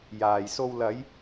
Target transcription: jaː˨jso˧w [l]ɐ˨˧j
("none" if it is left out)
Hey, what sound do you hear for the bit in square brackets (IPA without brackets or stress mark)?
l